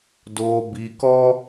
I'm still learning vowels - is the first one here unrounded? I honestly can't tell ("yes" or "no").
no